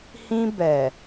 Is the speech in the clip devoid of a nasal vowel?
no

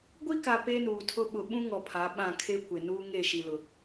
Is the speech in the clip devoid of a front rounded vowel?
yes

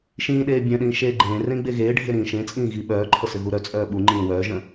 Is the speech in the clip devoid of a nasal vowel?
no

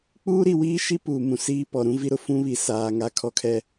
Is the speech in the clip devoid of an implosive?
yes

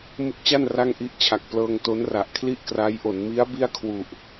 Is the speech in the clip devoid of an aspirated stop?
no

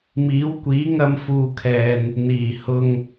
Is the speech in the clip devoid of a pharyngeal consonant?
yes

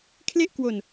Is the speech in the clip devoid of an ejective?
yes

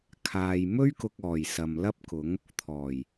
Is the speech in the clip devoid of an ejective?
yes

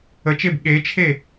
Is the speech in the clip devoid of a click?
yes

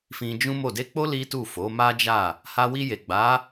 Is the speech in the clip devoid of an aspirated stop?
yes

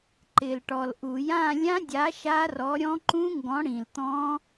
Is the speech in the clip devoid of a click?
no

